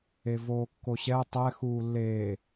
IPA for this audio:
e v oː kː o ɕ ɛ tˤ ɛ x uː lː eː

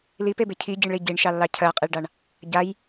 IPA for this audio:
l i p e b e cʰ i ɟ i ɳ ɭ i ɟ i ɳ ʃ ɑ lː ɑ cʰ ɜ qʼ e ɭ ɖ ɑ ɳ | ɟ a j

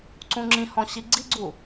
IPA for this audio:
ǀ ũ ŋ͡ǁ ĩ h ɔ̃ ɕ i ɡ͡ǀ i ɡ͡ǀ u

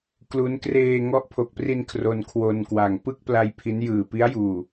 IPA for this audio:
k l u˦˥ n k r eː˧ ŋ ɔ˦˥ ʔ pʰ o˨˩ k̚ p r i˧ n kʰ r o˧ n kʰ w o˧ n k w a˨˩ ŋ p ɯ˥˩ k̚ p l a˧ j pʰ i˦˥ n j ɯː˨˩ p i˦˥ a̯ j uː˨˩

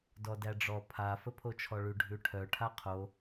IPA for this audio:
d ɔ d æ ɖ͡ʐ ɔ pʰ a f ə pʰ o t͡ʃʰ ɔ ɭ ʉ ɖʱ ʉ ʈʰ œ ʈʰ a qʰ o

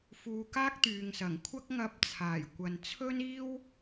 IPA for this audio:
f uː˧ k aː˥ k̚ t̪ yː˨ ŋ s ɐ˨˩ ŋ kʷʰ ɐ˥ k̚ ŋ ɐ˧ p̚ t͡sʰ aː˨˩ j kʷ ɐ˨ n t͡sʰ ɵ˥ n iː˥ w

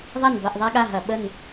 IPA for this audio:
ðˤ ɐ˥˨ n b ɐ˥˨ ʔ ðˤ a˥ ɠ a˥˨ ɦ ɐ˧˩˧ ɓ ə˥˨ n

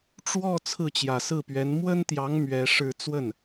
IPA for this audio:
ʈ͡ʂ w ɔ˥˧ t͡sʰ ɹ̩˥˩ t͡ɕ j ä˨˩ s ɹ̩˥˩ p ɥ ɛ˧˥ n m w ə˥ n t̪ j ɑ˧˥ ŋ m ɥ ɛ˧˥ ʂ ɻ̩˥˧ t͡s w ə˥˩ n

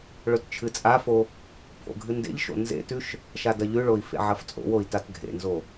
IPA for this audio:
ɭ ɵ t t͡ʃʰ ɨ t͡sʼ a f o | pʰ o̰ ɡʱ ɨ n d ḛ ʎ ʃ o̰ n z ḛ t ʉ ʃ | ʃ a d ɐ ʎ ʉ ɭ o i̯ f ḛ ʕ ɐ f t͡sʼ o̰ w o i̯ t a t ɡʱ ḛ n z o

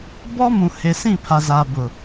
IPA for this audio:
b ɔ˦ m ũ˨ h e˨ s ĩ˦˨ pʰ a˨ z a˨ b ʊ˨

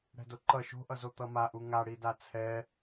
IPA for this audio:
ɽ ɛ̤ d o ǃ ʌ ʃ o̤ ʔ ʌ z o t̪ ʌ m a ʔ u ŋ a ɽ i d a t͡sʰ ɛ

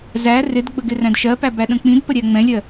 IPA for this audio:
z æ r ɪ d ɡ͡b ə ɡ ɪ r æ̃ d ʃ ɜ p æ b æ ɗ ə̃ k͡p ĩ d p ə ɾʲ æ ŋ͡m ɛ̃ lʲ ɜ

